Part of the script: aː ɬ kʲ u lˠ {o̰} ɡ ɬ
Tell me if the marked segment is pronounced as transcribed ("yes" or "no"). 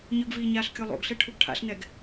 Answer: yes